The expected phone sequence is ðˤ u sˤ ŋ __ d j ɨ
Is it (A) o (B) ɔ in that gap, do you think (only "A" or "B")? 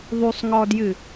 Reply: B